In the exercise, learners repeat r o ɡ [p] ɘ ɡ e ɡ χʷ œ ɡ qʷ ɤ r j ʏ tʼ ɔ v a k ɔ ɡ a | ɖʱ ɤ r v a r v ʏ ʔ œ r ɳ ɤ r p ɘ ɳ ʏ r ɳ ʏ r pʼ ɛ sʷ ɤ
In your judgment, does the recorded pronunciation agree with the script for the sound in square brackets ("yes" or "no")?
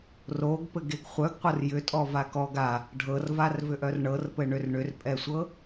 yes